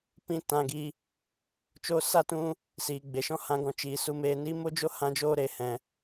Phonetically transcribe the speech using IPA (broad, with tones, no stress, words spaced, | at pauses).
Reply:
pĩ˦ tã˧ɡi˧ | t͡ʃoː˧sa˦˨tũ˧ | siː˨ɡ͡be˨ʃɔ̃˦ hã˧ɡɔ̃˧t͡ʃiː˨ su˧meː˧ni˦ mo˦d͡ʒo˦ hã˦d͡ʒoː˦ ɾe˨hɛ̃˨